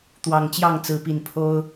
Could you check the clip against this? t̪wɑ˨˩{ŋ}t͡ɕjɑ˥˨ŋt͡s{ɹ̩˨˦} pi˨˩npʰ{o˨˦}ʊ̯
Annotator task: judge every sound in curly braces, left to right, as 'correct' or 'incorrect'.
correct, correct, incorrect: o˦

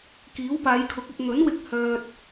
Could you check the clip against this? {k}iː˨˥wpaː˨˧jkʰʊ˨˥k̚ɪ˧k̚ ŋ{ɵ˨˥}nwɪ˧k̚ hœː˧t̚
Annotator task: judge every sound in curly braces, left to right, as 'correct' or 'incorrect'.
correct, correct

